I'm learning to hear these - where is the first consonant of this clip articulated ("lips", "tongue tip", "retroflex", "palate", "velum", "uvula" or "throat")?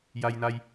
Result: palate